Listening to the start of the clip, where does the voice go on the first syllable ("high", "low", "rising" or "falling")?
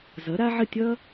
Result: rising